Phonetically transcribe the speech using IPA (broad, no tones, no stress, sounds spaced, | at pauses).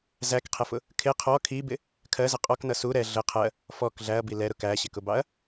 z æ k qʰ ɛ f ʊ | kʰ ɪ qʰ ɔ kʰ i b ɪ | kʰ ɜ z ʌ qʼ ɔ k n ʌ s u ɾ ɛ ɮ ə qʰ ɜ | f ɔ k ɮ æ ɐ̯ b i l ɛ ɾ ʊ k æ ɕ ɪ k ʊ b ɑ ɐ̯